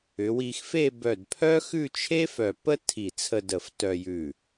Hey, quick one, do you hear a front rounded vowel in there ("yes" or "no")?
yes